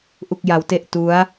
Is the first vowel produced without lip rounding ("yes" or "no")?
no